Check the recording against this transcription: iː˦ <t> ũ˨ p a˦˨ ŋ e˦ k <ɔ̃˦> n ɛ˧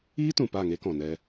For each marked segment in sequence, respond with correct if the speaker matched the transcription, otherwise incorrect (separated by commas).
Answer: correct, incorrect